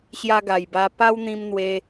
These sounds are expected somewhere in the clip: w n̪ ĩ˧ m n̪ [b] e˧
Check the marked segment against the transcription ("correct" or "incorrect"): incorrect